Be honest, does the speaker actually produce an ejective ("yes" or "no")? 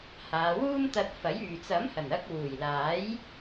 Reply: no